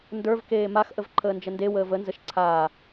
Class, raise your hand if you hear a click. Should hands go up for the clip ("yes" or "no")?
yes